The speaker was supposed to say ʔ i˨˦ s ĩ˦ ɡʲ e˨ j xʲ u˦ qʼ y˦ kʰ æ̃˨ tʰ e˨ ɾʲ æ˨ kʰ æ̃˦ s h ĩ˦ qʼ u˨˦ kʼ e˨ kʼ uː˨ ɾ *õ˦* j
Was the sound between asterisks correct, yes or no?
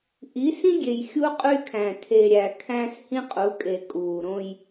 yes